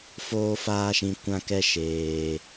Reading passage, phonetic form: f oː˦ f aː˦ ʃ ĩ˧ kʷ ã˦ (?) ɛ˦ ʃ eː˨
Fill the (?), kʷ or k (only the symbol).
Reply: k